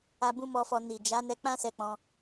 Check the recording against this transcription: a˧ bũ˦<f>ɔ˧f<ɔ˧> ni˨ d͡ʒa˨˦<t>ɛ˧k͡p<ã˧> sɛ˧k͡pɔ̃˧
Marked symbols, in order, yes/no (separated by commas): no, yes, no, no